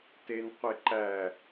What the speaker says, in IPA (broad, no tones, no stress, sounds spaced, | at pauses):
t e n qʷ e ǃ æ